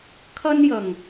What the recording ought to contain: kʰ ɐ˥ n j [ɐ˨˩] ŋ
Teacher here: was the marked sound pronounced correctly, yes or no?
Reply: yes